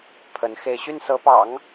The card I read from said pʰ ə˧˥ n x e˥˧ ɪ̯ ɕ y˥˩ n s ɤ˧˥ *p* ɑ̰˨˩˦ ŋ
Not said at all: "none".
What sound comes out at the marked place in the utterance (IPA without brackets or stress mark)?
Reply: p